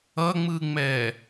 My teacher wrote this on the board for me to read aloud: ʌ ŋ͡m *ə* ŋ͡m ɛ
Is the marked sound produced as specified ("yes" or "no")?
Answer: no